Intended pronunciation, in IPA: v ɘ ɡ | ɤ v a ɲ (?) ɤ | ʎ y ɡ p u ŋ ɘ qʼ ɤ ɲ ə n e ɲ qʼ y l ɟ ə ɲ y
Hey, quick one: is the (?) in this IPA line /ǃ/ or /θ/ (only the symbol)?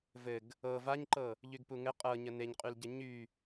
ǃ